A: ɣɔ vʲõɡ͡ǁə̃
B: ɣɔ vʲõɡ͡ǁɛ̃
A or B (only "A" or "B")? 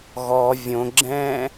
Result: B